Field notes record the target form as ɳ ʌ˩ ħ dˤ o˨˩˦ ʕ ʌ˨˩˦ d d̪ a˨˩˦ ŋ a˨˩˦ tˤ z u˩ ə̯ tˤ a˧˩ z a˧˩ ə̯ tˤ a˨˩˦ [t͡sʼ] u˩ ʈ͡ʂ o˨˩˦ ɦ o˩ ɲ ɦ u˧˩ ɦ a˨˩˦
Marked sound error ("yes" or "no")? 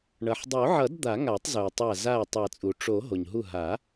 no